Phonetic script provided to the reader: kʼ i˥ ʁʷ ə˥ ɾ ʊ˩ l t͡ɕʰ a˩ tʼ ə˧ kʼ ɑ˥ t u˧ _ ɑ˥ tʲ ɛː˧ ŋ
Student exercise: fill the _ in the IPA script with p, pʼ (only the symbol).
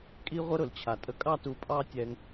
pʼ